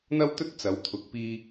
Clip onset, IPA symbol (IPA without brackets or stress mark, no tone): n̪